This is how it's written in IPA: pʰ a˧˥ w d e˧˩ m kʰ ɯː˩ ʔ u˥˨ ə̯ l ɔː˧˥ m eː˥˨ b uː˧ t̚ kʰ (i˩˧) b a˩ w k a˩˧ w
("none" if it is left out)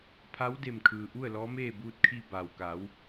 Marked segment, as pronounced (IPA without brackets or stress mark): i˧